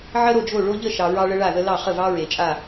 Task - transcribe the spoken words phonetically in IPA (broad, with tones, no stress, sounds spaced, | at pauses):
ʕ ə˥ ɾ o˥˨ d͡ʒ o˥˨ ɭ o˥ ʎ ə˥˨ ʃ ɑ˨ ɹ ɑ˥ ɭ ə˥ ɭ a˥˨ ð ə˥ l ɑ˥˨ χ ə˥˨ v ɑ˥ ɹ e˨ t͡ʃʼ a˥˨